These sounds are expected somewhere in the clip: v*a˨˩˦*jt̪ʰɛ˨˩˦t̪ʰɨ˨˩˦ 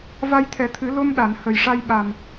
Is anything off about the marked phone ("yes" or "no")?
yes